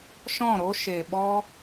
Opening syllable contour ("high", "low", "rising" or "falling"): falling